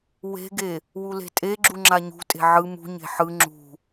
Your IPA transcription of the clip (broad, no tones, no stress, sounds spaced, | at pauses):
w e̤ ɡ e | w u l e̤ tʼ e ɡ͡ǁ u ŋ͡ǁ a ɲ ṳ tʼ e̤ ʕ ɯ m ṳ ɲ e̤ ħ ɯ ŋ͡ǁ ṳ